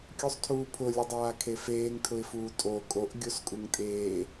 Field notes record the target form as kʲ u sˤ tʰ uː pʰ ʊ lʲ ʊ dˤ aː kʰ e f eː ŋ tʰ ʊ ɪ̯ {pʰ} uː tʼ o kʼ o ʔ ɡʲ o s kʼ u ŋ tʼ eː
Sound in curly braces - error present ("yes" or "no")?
yes